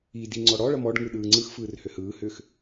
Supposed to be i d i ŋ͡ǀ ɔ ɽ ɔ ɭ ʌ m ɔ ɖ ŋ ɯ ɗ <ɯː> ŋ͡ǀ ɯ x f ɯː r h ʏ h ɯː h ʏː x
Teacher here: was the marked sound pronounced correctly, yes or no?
yes